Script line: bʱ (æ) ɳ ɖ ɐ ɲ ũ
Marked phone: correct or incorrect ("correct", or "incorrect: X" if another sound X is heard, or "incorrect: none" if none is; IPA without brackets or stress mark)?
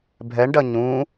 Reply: incorrect: ɛ